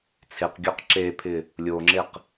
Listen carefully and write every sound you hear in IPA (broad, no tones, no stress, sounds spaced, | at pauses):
t͡sʰ e q ɡʲ ɔ q ǁ e pʰ ɪ | lʲ o ŋ͡ǁ e q